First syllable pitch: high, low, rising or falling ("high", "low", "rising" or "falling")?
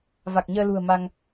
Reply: low